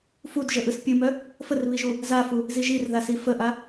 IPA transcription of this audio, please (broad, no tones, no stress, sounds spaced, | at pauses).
f u d ʒ ə ʔ ɯ s pʲ ɯ m œ | f ə r β i ʒ u | z a f u | z i ʒ i r ð a s i f ə ʔ a